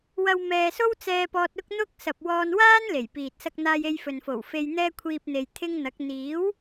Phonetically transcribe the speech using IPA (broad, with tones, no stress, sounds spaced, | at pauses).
w ɐ˧ w m ɛː˧ s o˥ w t͡s ɛː˧ p ɔː˧ t̚ ʊ˥ k̚ n̪ ʊ˥ k̚ s ɐ˨ p̚ w ɔː˧ n w aː˥ n l e˨˩ j p iː˨ t̚ s ɐ˧ k̚ n̪ aː˧ j e˧ j f ɵ˨ n f o˨˩ w f e˧ j n̪ ɛː˥ kʷʰ iː˧ p̚ n̪ e˨ j t̪ʰ ɪ˥ ŋ n̪ ɐ˨˥ k̚ n̪ iː˨˥ w